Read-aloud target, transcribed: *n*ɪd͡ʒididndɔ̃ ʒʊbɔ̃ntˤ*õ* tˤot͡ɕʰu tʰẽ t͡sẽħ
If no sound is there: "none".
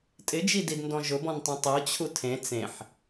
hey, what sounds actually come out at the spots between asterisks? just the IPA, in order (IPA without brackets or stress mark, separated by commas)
tʼ, õ